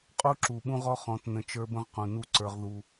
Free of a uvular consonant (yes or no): no